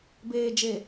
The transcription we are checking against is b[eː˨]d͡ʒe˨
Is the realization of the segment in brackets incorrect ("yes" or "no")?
no